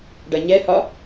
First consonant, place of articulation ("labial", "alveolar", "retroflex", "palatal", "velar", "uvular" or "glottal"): retroflex